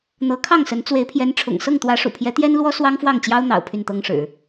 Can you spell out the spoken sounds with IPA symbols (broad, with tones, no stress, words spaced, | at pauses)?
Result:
n̪ɤ˧˥kʰɑ˥˩ŋsə˧˥n t͡swe˧˥ɪ̯pʰjɛ˧˥nʈ͡ʂʰʊ̰˨˩ŋ sɤ˥˩ŋt̪wä˧˥ʂṵ˨˩pʰjɛ˧˥ t̪jɛ˥nlwɔ˥ swɑ˥ŋfwɑ˥˩ŋt͡ɕjɑ˥ʊ̯n̪ɑ̰˨˩ʊ̯ pʰy˥˩nt̪ɤ˥ŋʂɻ̩˨˩˦